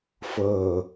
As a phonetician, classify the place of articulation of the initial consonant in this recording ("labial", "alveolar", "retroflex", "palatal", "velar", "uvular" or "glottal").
labial